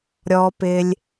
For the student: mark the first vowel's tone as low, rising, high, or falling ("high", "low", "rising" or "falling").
low